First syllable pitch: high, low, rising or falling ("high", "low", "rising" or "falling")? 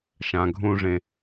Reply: low